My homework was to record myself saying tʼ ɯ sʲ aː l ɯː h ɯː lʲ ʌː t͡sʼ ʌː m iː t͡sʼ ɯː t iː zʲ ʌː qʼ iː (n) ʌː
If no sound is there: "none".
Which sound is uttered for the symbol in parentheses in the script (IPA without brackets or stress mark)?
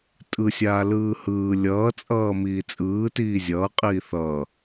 θ